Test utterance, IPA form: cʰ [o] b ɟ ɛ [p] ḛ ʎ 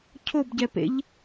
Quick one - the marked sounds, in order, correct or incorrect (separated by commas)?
correct, correct